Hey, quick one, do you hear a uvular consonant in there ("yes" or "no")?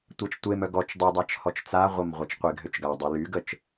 yes